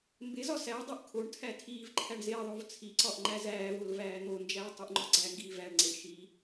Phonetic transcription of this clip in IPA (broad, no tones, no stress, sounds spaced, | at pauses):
m b e z ɒ s æ dˤ e ʔ kʰ o ɳ tʰ æ tʰ iː v ǃʰ æ ɳ z e ðˤ o v t͡sʰ i ǀ ɒ ʔ ŋ͡ǃ æ z æː v o l v æː n̪ o n d͡ʒ æː tˤ u ʔ ŋ͡ǃ ɒ ɡ͡ǀ æ ŋ ɡ iː v æ ɳ ŋ͡ǀ e ɳ ʃ i